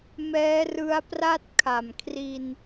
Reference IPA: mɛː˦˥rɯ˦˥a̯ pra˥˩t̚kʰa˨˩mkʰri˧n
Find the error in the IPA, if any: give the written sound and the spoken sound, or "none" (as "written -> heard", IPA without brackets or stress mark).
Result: none